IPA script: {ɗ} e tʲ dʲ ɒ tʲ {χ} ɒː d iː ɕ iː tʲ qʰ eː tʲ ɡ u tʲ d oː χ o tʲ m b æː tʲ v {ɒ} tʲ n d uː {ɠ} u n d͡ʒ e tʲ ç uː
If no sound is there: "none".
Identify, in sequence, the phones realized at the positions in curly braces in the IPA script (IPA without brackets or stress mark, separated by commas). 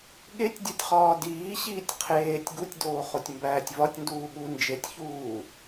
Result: ɠ, χ, ɒ, ɠ